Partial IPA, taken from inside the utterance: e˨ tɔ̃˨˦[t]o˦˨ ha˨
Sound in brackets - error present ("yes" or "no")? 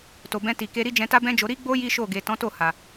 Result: no